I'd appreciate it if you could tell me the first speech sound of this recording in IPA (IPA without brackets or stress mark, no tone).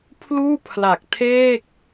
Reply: pʰ